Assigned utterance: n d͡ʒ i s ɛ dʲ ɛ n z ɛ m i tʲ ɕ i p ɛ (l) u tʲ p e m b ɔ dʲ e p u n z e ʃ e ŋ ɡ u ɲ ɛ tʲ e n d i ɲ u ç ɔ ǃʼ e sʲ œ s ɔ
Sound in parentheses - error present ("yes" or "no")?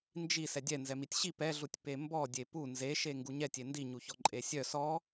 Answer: yes